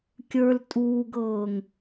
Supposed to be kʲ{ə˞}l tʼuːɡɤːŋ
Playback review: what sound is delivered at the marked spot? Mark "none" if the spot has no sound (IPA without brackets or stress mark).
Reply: ə˞